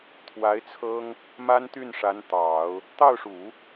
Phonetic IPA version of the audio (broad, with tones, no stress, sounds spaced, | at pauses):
t̪ʰ w a˧˥ ɪ̯ t͡sʰ ɤ˥ ŋ | m a˥ n t̪ y˥˩ n ʂ a˧˥ n t̪ ɑ˨˩˦ ʊ̯ | t̪ ɑ˥˩ ʊ̯ ʂ u˨˩˦